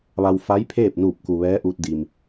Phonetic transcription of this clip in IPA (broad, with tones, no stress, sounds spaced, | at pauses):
ʋ a˧ w f a˧˥ j pʰ eː˥˨ p̚ n uː˧˩ p̚ k u˩ ʋ ɛː˧˥ ʔ uː˧ t̚ d i˩ m